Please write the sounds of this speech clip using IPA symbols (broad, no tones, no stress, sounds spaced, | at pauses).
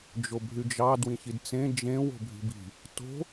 d͡ʒ o bʱ y d͡ʒ ɑ d w ĩ ç i d t͡s ẽ d͡ʒ ẽ w o̤ bʱ i̤ b i̤ | t o̤